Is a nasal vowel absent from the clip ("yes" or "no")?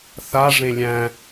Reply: no